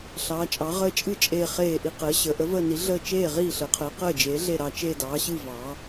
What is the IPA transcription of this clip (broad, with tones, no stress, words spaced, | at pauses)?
ɬɑː˩˧t͡ʃʼɑ˩˧ ʁəː˧˩t͡ʃʼɨ˧˩ t͡ʃʼeː˧˩χeː˧˩ʔi˧˩ qəː˩˧ɕəː˩˧ ʔə˩˧vəː˧˩ni˩˧ ɮəː˧˩ t͡ʃeː˧˩ʁiː˧˩ɬəː˩˧qʰəː˩˧ qəː˧˩d͡ʒeː˩˧ɮe˧˩ ɾɑ˧˩t͡ʃe˧˩ dɑː˩˧ɕɨ˧˩ vɑː˩˧